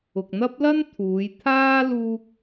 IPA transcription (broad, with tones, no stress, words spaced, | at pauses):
ʊ˨k̚n̪ɐ˥p̚lɐ˥n t̪ʰuː˨˧jt̪ʰaː˥ luː˥k̚